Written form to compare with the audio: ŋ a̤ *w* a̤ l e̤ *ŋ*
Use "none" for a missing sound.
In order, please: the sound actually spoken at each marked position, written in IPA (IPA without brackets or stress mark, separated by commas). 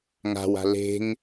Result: w, ŋ